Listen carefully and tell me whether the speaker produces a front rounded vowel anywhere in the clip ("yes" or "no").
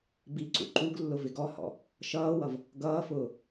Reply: no